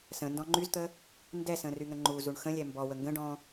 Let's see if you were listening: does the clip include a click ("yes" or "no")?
yes